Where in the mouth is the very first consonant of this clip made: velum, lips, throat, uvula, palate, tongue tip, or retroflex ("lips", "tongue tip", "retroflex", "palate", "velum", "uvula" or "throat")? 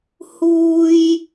throat